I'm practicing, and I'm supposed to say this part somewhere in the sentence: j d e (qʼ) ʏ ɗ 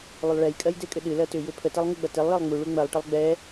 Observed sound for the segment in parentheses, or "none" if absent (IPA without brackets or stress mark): kʼ